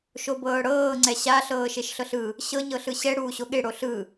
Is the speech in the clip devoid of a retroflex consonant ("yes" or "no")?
no